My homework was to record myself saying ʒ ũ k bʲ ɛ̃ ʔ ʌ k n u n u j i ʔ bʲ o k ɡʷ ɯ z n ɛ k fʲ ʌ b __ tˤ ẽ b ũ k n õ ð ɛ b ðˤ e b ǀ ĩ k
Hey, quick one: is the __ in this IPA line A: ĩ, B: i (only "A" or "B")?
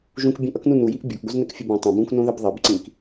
A